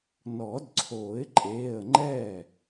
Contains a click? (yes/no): yes